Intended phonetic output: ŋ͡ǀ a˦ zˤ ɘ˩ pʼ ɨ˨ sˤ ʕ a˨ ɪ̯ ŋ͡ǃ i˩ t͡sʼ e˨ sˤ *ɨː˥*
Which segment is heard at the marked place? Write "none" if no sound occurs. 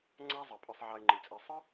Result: ɨ˥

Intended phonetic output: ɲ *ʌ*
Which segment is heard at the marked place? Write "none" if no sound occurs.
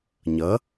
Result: ʌ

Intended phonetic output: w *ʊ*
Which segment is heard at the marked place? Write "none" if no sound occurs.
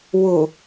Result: ʊ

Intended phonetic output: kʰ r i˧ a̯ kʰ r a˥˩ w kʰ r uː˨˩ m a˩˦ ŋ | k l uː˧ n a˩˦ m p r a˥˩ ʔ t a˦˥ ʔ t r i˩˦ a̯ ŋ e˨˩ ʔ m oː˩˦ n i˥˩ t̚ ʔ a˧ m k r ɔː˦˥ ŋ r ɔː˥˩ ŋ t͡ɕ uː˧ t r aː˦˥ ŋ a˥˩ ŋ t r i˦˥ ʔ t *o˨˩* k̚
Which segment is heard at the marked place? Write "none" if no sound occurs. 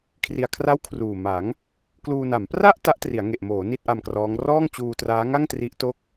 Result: o˥˩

